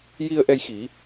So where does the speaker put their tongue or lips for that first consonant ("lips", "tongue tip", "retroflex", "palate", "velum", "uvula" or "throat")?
palate